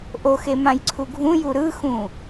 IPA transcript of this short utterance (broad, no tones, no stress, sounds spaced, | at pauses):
ʔ o x e m ã j ǀʰ u ɡʱ ũ j u ɾ ɯ x ũ